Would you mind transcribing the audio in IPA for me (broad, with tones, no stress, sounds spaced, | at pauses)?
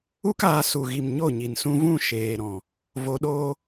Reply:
u˦ k aː˧ s u˨ ɣ i˨ m ɲ o˦˨ ɲ i˨ n s ũ˧ v ũ˦˨ ʃ eː˨ ɾ ɔ̃˨ | v o˧ ɗ oː˦